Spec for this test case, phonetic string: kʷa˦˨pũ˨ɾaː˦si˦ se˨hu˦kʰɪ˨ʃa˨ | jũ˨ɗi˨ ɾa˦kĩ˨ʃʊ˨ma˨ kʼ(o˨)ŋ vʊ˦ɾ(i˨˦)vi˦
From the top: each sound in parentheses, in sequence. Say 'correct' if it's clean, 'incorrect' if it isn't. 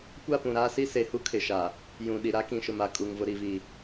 incorrect, correct

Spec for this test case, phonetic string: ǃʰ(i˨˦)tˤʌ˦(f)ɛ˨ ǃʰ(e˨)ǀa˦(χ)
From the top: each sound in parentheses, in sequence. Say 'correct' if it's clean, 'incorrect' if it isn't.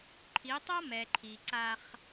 correct, incorrect, incorrect, correct

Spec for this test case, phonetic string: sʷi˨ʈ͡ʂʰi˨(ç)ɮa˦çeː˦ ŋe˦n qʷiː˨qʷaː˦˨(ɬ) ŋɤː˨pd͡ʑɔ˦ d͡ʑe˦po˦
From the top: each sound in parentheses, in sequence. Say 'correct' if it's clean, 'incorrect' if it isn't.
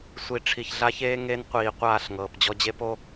correct, correct

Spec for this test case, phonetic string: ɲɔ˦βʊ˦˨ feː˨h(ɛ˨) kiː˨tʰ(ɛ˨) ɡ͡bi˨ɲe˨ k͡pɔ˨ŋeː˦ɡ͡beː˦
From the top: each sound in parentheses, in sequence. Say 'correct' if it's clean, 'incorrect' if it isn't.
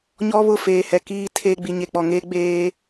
correct, incorrect

